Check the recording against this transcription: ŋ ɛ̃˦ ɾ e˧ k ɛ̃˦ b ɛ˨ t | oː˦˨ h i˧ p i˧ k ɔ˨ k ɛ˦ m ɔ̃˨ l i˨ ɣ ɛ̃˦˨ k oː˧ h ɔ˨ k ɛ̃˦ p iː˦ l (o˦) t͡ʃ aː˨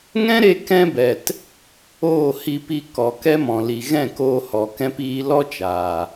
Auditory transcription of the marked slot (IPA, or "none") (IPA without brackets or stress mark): ɔ˦